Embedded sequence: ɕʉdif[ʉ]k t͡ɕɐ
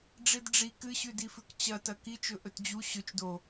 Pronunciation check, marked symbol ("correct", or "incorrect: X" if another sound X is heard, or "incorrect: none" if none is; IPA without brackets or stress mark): correct